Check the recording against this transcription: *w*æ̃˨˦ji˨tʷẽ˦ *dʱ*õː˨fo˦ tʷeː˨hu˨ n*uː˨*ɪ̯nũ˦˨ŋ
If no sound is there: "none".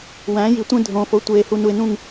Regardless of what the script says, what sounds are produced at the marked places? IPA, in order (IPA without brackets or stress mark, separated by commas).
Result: w, dʱ, u˨